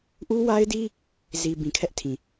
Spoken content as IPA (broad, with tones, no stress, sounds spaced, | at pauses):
ʔ u˦ w a˦ ɪ̯ d i˦ | z i˨ b ĩ˨ kʰ ɛ˦ ʔ tʰ ĩ˨